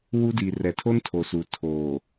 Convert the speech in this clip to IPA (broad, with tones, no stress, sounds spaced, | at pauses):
w u˦ d i˨ r ɛ˨ tʰ o˦ n tʰ o˨ s u˨ tʰ oː˨